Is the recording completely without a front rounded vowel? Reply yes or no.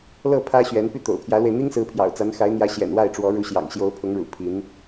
no